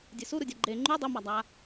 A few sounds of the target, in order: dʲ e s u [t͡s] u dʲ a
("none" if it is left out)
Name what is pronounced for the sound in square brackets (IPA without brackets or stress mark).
ɾ